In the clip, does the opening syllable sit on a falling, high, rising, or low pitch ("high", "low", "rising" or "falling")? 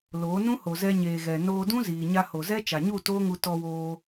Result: rising